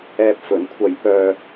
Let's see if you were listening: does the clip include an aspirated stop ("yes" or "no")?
yes